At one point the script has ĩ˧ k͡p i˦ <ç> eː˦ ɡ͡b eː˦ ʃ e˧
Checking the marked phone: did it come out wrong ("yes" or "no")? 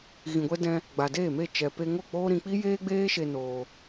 yes